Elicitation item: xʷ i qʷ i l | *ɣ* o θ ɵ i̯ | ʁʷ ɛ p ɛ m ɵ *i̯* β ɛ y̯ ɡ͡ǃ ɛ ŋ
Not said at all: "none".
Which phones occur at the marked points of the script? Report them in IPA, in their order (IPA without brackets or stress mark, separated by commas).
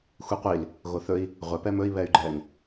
ɣ, i̯